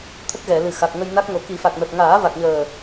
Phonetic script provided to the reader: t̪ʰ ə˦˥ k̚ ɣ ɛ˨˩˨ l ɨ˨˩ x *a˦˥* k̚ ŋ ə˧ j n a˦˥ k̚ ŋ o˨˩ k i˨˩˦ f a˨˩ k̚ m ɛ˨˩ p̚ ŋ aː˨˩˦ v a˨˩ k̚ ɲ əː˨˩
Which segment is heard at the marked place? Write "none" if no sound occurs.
a˨˩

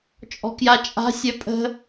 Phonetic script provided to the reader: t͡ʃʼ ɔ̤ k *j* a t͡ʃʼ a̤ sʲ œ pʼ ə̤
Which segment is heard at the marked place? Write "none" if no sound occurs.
j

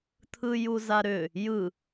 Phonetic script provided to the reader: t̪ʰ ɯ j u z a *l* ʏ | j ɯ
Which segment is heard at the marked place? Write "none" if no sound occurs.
ɾ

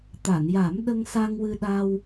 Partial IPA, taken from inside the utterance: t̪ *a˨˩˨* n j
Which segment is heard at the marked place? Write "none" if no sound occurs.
a˨˩˨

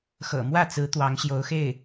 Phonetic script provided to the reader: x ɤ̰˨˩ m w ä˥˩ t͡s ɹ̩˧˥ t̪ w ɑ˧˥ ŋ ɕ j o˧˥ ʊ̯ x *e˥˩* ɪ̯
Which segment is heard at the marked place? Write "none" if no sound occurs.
e˥˩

